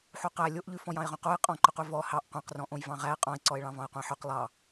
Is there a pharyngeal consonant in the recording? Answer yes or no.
yes